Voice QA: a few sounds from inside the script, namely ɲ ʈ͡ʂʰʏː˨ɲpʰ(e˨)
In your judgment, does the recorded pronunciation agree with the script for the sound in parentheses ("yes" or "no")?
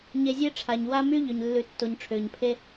no